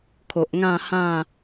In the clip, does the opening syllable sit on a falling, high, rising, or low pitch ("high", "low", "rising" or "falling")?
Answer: low